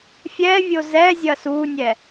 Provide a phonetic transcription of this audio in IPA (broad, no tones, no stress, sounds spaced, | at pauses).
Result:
fʲ ɛ vʲ o z ɛ zʲ ɐ s u nʲ ɛ